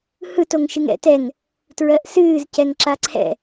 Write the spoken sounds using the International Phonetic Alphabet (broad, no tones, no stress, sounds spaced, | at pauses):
h ɯ t o ŋ ʃ ɨ ŋ ɛ̰ t ɛ ŋ | t ɹ ɜ ʔ s ɨː z c ɛ ŋ ǁ a ǀʰ ɛ̰